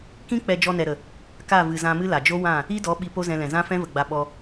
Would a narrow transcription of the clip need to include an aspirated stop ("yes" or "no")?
no